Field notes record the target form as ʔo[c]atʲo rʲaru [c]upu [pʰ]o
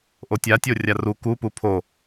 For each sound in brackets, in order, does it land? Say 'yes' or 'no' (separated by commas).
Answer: no, no, yes